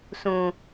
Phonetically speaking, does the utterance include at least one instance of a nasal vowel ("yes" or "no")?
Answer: yes